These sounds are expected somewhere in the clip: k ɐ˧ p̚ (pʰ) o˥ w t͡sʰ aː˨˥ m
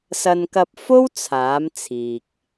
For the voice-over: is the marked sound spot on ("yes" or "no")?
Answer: no